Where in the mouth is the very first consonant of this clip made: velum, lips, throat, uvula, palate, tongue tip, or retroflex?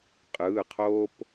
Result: uvula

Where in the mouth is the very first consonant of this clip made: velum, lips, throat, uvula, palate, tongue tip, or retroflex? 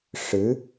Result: retroflex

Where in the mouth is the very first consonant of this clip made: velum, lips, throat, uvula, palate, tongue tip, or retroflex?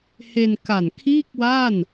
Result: throat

